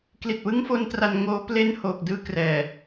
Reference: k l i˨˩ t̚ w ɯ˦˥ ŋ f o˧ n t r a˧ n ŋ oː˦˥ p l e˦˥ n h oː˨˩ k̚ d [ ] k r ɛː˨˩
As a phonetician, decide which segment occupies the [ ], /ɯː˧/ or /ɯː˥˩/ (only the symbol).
ɯː˥˩